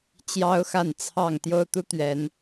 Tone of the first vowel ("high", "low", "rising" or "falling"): high